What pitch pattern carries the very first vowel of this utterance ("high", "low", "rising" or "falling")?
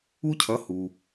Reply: high